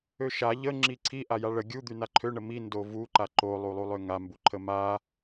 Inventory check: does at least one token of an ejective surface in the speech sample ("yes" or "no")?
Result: no